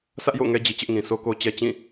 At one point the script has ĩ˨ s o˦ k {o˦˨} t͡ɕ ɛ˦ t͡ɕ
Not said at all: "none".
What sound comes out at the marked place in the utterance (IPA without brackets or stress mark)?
o˦